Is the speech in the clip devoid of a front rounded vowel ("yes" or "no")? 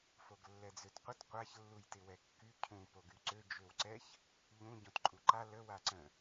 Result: no